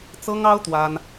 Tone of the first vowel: high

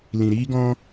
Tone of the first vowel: low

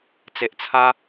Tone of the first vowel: low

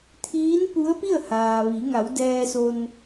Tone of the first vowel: rising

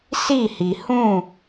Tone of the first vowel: falling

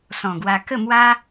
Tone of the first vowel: low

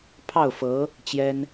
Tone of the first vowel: falling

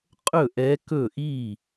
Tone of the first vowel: falling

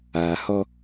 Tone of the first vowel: low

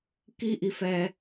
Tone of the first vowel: high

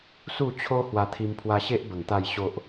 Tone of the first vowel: falling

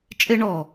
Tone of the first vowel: high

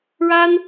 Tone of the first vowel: high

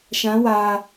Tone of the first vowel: rising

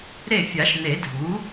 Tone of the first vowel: falling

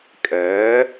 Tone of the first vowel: rising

